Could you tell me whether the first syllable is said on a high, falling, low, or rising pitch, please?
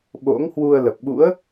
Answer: rising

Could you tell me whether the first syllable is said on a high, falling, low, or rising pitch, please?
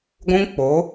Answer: high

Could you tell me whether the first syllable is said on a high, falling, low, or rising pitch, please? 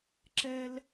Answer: high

